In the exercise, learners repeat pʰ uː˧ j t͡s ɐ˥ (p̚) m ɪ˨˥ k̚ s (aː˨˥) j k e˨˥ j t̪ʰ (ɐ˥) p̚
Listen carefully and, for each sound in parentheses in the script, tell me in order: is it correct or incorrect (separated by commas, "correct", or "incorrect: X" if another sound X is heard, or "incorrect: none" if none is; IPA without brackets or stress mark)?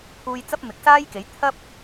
correct, incorrect: aː˥, correct